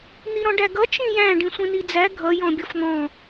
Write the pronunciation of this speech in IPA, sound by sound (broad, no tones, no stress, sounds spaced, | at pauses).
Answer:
n̪ i ɾ ɔ̃ ɖ æ ɡ ʌ t͡ʃ ĩ j æ̃ ɖ ĩ sʷ ĩ n i d͡z æ ɡʱ ʌ j ɔ̃ bʲ ɔ f n̪ ɔ̃